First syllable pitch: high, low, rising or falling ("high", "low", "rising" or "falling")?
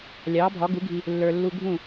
rising